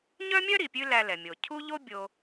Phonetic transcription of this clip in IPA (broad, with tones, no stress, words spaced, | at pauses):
ɲœ˥mʲœ˥ɾi˩ pʲʉ˥læ˧lɛ˩mʲo˩ cʰu˥ʎo˥ bʲo˧